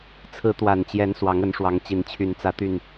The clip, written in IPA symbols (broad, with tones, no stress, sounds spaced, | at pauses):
t͡sʰ ɹ̩˨˦ t̪ w a˨˩ n t͡ɕ j ɛ˨˦ n s w ɑ˨˦ ŋ ə˨˦ n ʂ w ɑ˨˦ ŋ t͡ɕ i˨˦ n t͡ɕʰ y˨˦ n t͡s ä˨˦ t̪ y˨˩ n